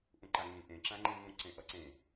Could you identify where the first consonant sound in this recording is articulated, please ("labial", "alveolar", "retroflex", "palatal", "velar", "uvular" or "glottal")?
glottal